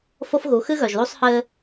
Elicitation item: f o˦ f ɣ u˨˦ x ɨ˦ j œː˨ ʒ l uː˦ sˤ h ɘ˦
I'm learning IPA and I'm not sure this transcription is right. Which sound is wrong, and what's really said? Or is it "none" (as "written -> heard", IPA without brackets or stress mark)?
j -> ɣ